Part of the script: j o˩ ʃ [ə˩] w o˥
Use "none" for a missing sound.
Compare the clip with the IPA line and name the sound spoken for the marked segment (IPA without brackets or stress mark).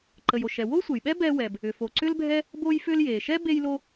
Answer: ɛ˩